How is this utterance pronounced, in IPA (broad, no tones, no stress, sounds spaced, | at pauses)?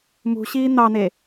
m ṳ ɕ iː n̪ ɑ n̪ e